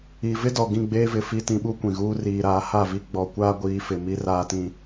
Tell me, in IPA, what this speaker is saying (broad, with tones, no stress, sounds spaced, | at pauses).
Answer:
i˨ v ɪ˦ d ɔ˨ ɡ ĩ˦˨ ɡ͡b eː˦ v ɪ˨ f i˦˨ t ĩ˦ ɓ u˦ kʷ ĩ˨ ɣ uː˦ r iː˨ ɾ aː˨˦ h a˦˨ v i˦ ɡ͡b ɔ˨ kʷ aː˦ ɡʷ iː˨˦ f ɪ˨ m i˦ r aː˦ t ĩ˦